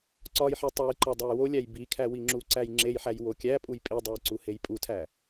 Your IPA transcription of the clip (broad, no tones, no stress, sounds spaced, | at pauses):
ǀ ɒ j ħ e tˤ e j ǃ ɒ dˤ æ j w o lʲ æ j b i kʰ æ w i ŋ͡ǁ u ǀ æ j ŋ͡ǁ e j ħ æ j w o kʲ æ pʼ u j pʼ i dˤ u j ǀ u h e j pʼ u tʰ æ